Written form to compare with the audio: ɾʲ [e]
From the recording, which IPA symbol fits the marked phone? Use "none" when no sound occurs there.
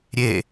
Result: e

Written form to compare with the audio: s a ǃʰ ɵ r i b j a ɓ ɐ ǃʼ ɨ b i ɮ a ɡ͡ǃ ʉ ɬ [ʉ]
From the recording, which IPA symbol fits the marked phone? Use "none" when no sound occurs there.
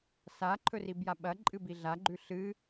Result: ɨ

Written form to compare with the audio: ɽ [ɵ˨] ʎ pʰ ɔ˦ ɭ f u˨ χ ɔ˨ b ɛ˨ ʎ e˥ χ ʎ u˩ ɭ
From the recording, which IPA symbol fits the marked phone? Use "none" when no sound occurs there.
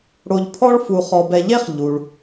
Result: o˨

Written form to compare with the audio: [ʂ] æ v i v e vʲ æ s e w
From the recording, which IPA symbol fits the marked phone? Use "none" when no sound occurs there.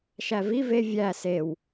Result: ʃ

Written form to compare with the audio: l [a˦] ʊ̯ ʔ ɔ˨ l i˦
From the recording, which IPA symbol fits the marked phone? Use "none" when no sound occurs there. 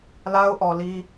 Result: a˦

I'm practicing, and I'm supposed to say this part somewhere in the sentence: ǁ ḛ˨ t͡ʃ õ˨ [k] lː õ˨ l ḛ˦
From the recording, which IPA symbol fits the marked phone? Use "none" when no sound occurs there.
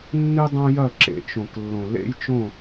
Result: k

